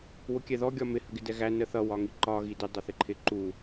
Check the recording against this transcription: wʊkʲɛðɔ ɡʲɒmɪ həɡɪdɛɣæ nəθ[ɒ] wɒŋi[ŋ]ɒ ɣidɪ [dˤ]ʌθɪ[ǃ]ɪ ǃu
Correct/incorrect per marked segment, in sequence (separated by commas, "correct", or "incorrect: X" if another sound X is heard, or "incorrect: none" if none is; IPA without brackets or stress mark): incorrect: ʌ, incorrect: ǃ, correct, incorrect: ǃʰ